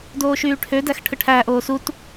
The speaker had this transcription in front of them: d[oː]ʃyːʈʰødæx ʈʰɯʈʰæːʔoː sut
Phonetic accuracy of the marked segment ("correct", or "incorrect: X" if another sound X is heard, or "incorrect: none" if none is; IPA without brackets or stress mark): correct